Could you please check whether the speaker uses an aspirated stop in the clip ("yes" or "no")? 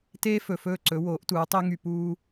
no